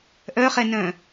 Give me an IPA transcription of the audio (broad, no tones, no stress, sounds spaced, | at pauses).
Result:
ʔ œ χ ɛ n œ̃